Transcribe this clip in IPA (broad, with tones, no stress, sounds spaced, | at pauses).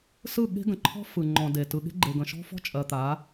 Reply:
s ɯ˦˨ ɠ e̤˦ ɡ ə̃˨ ǃʰ ɔ̤˦ f ɯ˨ ŋ͡ǃ ɔ̃˨ d e˨ t ɯ˨ ɠ e̤˦ ɡ͡ǃ e˨ ɡ ə̃˨ ʃ ɔ̤˦ f ɔ̤˦ t͡ʃʼ ɜ˨ t̪ a˨˦